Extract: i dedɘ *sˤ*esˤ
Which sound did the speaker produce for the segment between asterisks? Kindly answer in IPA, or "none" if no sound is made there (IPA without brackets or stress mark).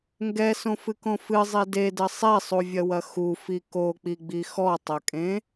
sˤ